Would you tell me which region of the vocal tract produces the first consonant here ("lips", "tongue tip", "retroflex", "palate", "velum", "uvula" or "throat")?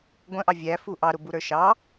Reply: velum